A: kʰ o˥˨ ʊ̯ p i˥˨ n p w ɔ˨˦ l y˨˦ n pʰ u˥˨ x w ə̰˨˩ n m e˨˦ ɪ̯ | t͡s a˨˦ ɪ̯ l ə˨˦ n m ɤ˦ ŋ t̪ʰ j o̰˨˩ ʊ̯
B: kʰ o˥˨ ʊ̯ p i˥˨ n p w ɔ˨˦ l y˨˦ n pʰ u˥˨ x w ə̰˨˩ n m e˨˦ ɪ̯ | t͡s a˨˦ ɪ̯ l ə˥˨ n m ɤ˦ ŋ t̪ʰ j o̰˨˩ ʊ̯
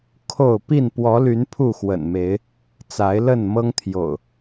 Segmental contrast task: B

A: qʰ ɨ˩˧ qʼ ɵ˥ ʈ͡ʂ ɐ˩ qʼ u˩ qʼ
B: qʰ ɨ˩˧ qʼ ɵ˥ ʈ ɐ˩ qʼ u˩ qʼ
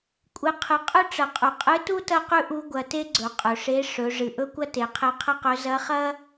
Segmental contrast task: A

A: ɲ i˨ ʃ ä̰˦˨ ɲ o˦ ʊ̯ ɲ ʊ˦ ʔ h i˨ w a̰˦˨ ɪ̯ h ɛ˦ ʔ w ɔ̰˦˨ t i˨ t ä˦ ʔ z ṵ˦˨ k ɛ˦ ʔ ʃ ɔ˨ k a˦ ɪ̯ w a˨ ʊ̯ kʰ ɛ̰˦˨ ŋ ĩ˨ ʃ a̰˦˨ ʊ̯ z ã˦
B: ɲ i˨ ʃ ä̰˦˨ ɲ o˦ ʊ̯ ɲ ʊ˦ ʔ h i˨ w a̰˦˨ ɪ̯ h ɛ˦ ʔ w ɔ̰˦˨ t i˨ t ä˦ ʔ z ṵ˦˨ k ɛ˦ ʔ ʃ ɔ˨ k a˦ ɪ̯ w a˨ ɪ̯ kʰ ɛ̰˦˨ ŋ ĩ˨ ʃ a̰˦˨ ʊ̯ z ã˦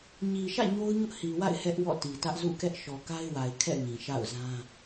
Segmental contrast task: B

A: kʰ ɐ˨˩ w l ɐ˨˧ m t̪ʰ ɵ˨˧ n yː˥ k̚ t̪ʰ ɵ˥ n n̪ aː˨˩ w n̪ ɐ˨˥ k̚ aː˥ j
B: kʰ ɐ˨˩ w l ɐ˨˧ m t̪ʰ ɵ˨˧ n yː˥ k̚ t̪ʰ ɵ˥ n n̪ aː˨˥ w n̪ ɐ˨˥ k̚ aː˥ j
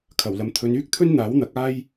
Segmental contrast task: B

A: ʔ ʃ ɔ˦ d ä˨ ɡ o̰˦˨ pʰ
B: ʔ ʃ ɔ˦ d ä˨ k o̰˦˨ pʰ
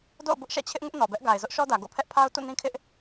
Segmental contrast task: A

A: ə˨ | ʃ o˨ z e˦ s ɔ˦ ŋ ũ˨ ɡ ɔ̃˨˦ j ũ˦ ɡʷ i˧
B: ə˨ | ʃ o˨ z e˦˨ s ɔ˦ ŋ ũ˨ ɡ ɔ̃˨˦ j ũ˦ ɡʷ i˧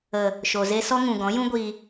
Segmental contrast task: A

